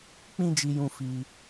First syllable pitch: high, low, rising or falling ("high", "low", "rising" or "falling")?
high